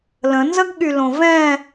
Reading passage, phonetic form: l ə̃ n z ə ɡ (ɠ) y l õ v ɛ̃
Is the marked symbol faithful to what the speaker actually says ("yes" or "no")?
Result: yes